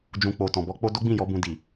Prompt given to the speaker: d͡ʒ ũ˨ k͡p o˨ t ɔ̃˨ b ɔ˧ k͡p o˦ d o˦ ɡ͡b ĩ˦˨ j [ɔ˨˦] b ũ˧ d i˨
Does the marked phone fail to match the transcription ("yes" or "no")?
no